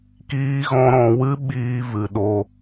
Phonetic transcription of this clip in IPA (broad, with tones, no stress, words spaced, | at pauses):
kiː˦ɣɔ̃˦ ɾɔ̃˧wɨ˦ ɓiː˦ vɨ˧ɗo˦